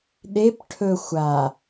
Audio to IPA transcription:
ɗ e p ʈʰ ɵ xʷ a

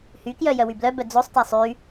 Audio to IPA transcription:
h y k j œ j œ w y b l œ b œ d͡z o sˤ t æ sˤ y

